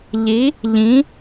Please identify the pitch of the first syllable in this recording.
rising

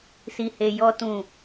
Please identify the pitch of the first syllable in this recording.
low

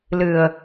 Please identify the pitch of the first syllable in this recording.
low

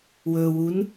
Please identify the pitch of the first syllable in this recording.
low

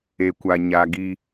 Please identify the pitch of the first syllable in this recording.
low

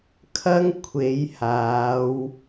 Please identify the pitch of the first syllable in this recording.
high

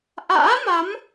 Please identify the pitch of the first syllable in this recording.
rising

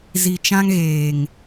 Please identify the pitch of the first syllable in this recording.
low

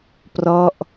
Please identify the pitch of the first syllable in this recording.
falling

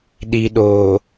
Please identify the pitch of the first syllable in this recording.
low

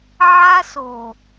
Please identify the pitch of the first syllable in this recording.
high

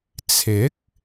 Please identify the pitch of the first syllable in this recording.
rising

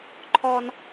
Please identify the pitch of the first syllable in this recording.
high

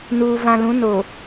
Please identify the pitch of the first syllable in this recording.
low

